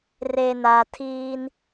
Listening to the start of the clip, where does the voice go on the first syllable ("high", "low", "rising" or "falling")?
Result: low